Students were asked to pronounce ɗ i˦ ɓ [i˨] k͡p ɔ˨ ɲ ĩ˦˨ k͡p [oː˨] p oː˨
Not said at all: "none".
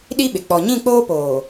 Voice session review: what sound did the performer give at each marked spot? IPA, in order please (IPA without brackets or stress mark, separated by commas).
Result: ɪ˨, oː˦